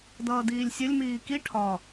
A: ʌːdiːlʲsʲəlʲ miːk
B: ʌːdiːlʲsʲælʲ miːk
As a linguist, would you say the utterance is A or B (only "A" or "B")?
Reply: A